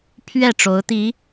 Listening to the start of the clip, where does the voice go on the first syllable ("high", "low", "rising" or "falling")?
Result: falling